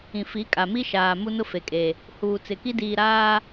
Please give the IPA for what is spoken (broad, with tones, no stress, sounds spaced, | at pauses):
ĩ˨ f i˨˦ kʼ a˨ m i˦ ʃ aː˨ m u˦ n ʊ˦ f e˨ kʼ e˨ | h uː˨ t͡s ɪ˨ k i˦ d iː˨ ɾ aː˦